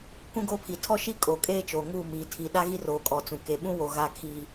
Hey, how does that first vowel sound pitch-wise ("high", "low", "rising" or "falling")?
high